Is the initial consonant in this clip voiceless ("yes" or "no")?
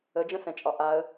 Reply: no